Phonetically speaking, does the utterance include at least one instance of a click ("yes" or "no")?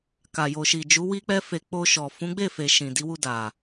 no